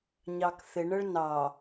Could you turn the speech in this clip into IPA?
ɲ ɑ k θ ɪ ɳ ə ɭ n ɑ

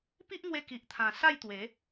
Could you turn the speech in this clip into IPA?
p i˦ ʔ ŋ w e˧ k i˨ ʔ t̪ʰ ã˨˩ s a˥˧ j t̪ w e˨˦

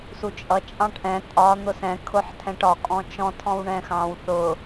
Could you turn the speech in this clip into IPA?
s u t͡ʃʼ ʌ t͡ʃʼ ɑ̃ ʈ ʔ ɛ̃ tʼ ɒ n̪ ʊ s ɛ̃ kʰ ʊ ħ tʰ ɛ̃ ʈ ɒ kʼ ɔ̃ t͡ʃ ɔ̃ tʰ ɔ̃ w ɳ ɛ̃ x ɑ̃ w θ ʊ

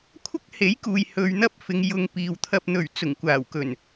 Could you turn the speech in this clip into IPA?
kʷʰ ɐ˥ k̚ h e˨˥ j k uː˨ j h ɵ˧ ɥ n̪ ɐ˥ p̚ f ɪ˨˧ ŋ j ʊ˧ ŋ p iː˨ w t̪ʰ ɐ˨ p̚ n̪ ɵ˨˩ ɥ t͡s ʊ˨˩ ŋ kʷ aː˨˩ w k ɵ˨˩ n

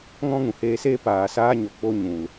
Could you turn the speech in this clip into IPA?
ŋ ɔ̃˦ ŋ ũ˨ h eː˧ s eː˦ p aː˨ s aː˧ ɲ o˨ k͡p o˧ ɲ ũ˨ l

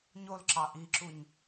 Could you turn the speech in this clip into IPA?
ɲ o l ǁ ɑ ʔ i ǁ u ɲ

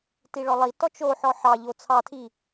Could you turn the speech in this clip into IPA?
t i ɭ ɔ lˠ i t ɔ t͡ʃ o ħ ɔ ħ ɑ ʎ o t͡sʰ ɑ tʰ i

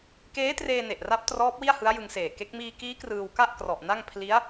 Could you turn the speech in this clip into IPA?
k eː˦˥ t r eː˧ n e˨˩ ʔ r a˦˥ p̚ t r ɔː˦˥ p̚ w i˥˩ a̯ h ɯ˦˥ a̯ j ɯ˧ ŋ s eː˨˩ k e˦˥ k̚ m iː˧ k iː˦˥ k r ɯː˧ w k a˥˩ ʔ k r ɔ˨˩ ʔ n a˥˩ ŋ pʰ l i˦˥ a̯

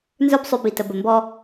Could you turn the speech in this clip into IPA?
n z ə˞˦ b sˤ ʉ˧ b i˨ t ə˨ b ə˨ m b ɔ˦

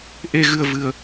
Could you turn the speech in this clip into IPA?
ʔ e˧ ɣ ɨ˧ ə̯ v ɨ˧ ə̯

